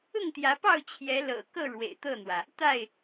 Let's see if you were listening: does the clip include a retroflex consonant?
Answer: yes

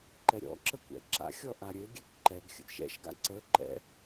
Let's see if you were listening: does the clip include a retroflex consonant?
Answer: no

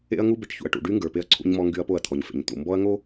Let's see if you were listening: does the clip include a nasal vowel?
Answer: no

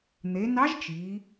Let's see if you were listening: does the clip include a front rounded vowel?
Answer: no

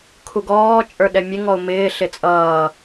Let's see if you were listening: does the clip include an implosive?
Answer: yes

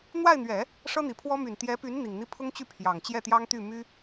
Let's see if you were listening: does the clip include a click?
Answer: no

